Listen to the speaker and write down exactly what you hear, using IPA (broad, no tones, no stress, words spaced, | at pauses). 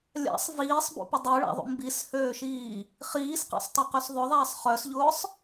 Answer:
lʲa̰sˤ viːsˤbṵpʊ dˤœɭa̰ðˤṵ mbishøːʃiː | χiːsqa̰sˤtˤaqøs ðˤʊðˤaːsˤ χœsʎʊːsˤ